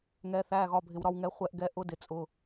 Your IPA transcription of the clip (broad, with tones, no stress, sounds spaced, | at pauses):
ŋ ɛ˩˧ θ æ˩˧˩ ɣ ɒ˩˧˩ bʱ ɪ˩ w ɾ ɒ˦˨ w ŋ ɛ˩˥ χʷ ɛ˦˨ ʔ ɡ ɛ˧˥ ʔ ʊ˧˥ d ɪ˩ t͡sʼ ʊ˩˧˩